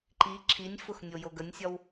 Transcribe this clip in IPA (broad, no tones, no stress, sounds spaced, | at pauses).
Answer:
ǃ i ǁʰ i nʲ f ʊ x nʲ o j o ɡ ə nʲ sʲ ɒ w